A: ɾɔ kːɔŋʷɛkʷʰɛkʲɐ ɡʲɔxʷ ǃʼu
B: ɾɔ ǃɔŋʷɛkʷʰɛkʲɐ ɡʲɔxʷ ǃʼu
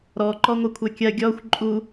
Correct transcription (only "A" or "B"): B